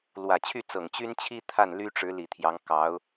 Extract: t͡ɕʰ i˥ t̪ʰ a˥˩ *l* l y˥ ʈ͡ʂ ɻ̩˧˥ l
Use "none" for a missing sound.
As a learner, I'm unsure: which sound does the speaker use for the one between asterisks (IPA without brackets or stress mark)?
n